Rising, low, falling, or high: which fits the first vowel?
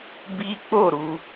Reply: high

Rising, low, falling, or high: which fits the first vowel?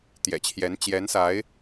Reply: low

